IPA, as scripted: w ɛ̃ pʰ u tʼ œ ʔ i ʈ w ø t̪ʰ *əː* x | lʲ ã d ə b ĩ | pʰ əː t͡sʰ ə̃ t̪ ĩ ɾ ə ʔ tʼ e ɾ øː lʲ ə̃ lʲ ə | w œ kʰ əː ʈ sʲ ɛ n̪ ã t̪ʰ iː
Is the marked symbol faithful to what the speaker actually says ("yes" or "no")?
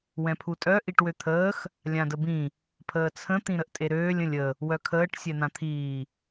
yes